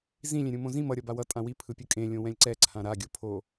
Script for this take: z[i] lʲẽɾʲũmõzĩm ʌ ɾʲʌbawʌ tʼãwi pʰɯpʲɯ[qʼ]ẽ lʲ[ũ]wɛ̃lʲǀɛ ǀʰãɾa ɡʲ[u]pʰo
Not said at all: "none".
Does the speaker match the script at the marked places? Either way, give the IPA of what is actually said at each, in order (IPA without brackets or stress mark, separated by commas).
ĩ, kʼ, õ, o